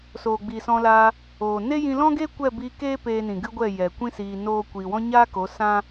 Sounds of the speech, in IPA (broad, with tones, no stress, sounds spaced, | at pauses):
s oː˨ ɡ͡b iː˨ s ɔ̃˧ l aː˧ | oː˨ n e˦ j ĩ˧ l ɔ̃˦ ɡ eː˦ kʷ ɛ˦˨ b iː˧ k eː˦ p eː˧ n ĩ˨ ɡ ɨ˦ ɡʷ ɛ˦˨ j ɛ˨ kʷ ĩ˦ s iː˧ n oː˦ kʷ iː˧ w ɔ̃˦ ɲ aː˦ k o˨˦ s ã˦